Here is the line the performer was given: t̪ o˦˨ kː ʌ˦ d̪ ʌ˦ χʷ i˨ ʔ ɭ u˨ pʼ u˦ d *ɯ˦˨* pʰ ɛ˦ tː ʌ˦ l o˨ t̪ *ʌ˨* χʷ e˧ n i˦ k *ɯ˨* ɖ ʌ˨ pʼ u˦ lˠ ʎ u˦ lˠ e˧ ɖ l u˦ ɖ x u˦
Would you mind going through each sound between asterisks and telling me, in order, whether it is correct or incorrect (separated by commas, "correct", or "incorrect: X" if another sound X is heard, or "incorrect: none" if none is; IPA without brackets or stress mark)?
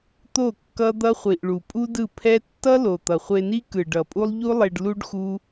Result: correct, correct, correct